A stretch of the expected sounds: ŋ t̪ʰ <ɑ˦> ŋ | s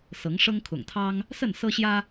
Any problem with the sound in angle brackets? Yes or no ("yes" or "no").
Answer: no